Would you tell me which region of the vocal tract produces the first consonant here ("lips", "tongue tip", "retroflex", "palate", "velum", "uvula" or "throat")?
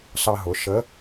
tongue tip